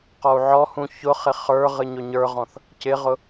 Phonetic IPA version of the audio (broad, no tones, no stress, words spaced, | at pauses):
qɔu̯ʕɔhũ çʊχɪ χə˞ ʁɨɲʊɲə˞ʁɔ̃θ | cɪʁʊ